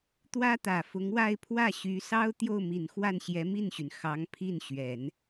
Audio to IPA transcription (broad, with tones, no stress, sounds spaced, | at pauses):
t̪ w ä˥ t̪ ä˨˩ f ʊ˧˥ ŋ w a˥˧ ɪ̯ pʰ w ä˥˩ ɕ y˧˥ s ɑ˥ ʊ̯ t̪ j o˥˩ ʊ̯ m i˨˩ n x w a˥˩ n ɕ j ɛ˧˥ m i˥˩ n ɕ y˩ n x ɑ˧˥ ŋ pʰ i˥˩ n ɕ ɥ ɛ˨˩˦ n